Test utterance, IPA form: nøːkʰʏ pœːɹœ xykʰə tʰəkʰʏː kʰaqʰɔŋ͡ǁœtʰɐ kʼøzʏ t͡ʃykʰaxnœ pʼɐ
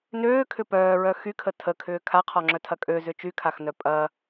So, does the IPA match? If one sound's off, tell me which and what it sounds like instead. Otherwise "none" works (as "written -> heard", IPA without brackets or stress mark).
none